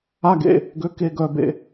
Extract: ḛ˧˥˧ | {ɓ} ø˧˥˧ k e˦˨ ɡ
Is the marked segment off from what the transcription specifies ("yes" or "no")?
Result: yes